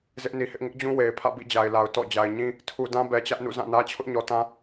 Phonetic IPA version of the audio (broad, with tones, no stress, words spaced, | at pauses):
zɪ˦ʔni˨hɪ˦ʔ ŋɪ˦ʔd͡ʑũ˦we˨ɪ̯pʰä̰˦˨ bḭ˦˨d͡ʑa˨ɪ̯la˨ʊ̯ tɔ̰˦˨ d͡ʑa˨ɪ̯ɲĩ˦ | tʰu˨dã˦ bɛ˨t͡ɕä˦ʔnṵ˦˨ zã˦˨nä˦ t͡ɕʰʊ˦ʔɲɔ˨tã˦